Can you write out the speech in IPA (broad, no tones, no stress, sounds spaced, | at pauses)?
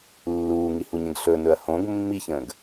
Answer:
lː uː ŋ i h u ɲ ə̃ ɡ ɬ ɵ n ɵ ɐ̯ h õ ɡ mː i ç ə̃ː ɡ